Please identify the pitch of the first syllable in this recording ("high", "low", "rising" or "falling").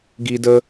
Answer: high